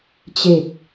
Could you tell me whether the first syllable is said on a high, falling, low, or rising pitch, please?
low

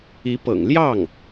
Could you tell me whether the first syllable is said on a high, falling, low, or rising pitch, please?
rising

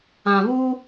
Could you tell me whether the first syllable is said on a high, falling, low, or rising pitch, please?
low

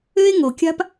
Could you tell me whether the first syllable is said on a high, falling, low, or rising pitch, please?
high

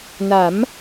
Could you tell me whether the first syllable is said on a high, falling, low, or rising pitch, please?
rising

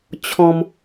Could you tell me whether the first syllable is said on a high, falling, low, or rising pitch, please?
high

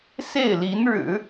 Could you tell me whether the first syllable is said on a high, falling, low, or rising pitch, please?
falling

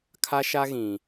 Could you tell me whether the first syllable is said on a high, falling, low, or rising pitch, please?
high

